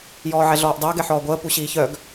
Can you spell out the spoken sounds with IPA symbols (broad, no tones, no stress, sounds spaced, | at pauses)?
j ɔː ʕ ɛ ɮ ɔː ʔ dˤ əː ɡ ɛ ħ ɔː ɡʷ əː p u ɕ iː ç œ ɡ